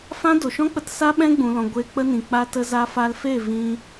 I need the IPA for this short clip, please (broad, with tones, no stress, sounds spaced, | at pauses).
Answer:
f ã˦ d o˨ ʃ ɔ̃˦ k͡p ə˧ t s a˦ ɓ ɛ̃˦ ɡ͡b ũ˨ l ɔ̃˨ ɡʷ e˧ k͡p ə˦ n ĩ˨ k͡p a˧ t ə˧ z a˧ f a˧ l f e˦˨ v ĩ˧